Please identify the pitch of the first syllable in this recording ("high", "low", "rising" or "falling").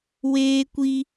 high